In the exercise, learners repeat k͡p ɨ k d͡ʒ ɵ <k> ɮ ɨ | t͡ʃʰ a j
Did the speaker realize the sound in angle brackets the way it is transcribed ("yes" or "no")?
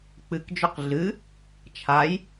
no